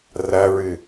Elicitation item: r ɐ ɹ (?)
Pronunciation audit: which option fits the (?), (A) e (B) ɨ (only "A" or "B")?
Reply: B